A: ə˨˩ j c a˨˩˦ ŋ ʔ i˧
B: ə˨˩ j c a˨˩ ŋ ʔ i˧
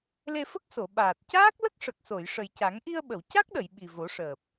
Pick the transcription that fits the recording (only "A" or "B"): A